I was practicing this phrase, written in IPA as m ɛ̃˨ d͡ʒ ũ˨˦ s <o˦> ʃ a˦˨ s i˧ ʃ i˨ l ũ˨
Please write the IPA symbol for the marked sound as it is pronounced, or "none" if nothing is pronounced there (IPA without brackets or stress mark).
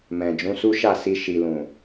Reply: u˦